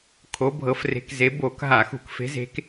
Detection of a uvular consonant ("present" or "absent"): absent